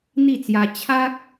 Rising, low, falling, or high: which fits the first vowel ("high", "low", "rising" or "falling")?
falling